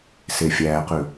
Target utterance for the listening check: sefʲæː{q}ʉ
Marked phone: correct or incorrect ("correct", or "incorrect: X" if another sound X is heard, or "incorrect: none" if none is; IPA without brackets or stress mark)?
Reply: correct